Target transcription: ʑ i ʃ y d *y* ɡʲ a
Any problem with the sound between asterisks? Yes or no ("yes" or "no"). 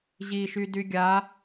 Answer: no